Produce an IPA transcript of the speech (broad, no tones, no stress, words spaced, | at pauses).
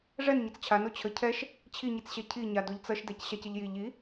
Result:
ʐɛnɲʌt͡s t͡ɕʰano t͡ɕʰə cʰɛʃ | t͡ɕʰiɲit͡sɕɛ cʰiɲa doʎt͡sʌʃdɛc ɕacəʎji ʎi